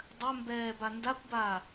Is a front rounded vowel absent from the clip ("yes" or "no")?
no